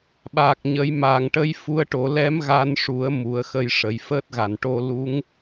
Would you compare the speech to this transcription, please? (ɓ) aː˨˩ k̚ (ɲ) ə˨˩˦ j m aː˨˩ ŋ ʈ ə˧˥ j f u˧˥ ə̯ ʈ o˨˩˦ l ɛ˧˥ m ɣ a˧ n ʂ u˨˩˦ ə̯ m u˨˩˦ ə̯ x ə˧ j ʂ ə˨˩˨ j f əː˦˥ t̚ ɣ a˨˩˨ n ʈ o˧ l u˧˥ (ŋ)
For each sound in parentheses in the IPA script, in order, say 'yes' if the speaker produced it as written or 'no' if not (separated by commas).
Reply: yes, yes, yes